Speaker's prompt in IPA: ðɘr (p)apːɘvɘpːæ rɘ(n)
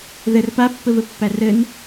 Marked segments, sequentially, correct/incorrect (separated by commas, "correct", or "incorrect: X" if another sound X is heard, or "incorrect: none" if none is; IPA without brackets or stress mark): correct, correct